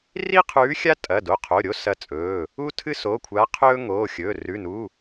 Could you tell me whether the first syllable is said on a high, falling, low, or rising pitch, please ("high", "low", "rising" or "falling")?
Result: high